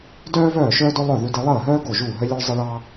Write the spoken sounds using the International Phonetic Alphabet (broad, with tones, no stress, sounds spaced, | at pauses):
d œː˥ v œː˥˩ ʃ œː˥ d ʊ˥ lˠ œ˥˩ ð ʉ˥ d e˥ lˠ əː˥˩ ɦ œː˥ ɡ o˥˩ ʒ uː˥˩ ɦ œ˥ lʲ o˥ ɭ zˤ ə˥ ɭ ɑ˥